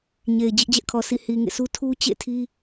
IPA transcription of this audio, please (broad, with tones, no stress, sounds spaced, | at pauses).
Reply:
ɲ e˨ ɪ̯ d͡ʑ ɪ˦ ʔ d͡ʑ ɛ˦ ʔ kʰ ɔ˨ sʰ ḭ˦˨ h i˨ ŋ ḛ˦˨ sʰ u˦ tʰ u˦ t͡ɕ ḛ˦˨ tʰ i˦